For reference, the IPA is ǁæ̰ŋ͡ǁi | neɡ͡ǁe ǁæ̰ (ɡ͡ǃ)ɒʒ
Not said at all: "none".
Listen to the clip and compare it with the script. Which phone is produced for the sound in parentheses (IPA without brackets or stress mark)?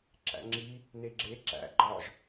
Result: ɡ͡ǃ